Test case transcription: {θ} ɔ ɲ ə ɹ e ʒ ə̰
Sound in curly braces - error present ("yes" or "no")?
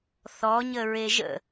no